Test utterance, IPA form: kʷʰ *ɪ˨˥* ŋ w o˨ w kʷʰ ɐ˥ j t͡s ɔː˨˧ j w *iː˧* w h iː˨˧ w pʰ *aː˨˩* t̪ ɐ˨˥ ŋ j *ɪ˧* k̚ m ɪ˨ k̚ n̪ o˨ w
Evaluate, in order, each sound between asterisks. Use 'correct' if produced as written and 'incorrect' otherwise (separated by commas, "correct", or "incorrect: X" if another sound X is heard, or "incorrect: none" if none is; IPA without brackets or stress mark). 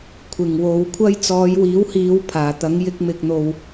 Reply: incorrect: ɪ˨˩, incorrect: iː˨˥, correct, correct